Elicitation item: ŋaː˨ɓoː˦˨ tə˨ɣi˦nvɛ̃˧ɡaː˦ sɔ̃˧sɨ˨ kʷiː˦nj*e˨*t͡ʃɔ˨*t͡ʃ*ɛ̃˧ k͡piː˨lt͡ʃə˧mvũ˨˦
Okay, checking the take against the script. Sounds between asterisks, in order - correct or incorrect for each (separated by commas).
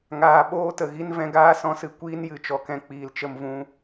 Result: incorrect, incorrect